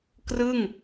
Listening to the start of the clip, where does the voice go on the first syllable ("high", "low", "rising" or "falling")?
falling